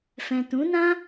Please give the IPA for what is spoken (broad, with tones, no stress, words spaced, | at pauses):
fɛ̃˨ tũ˨˦nã˦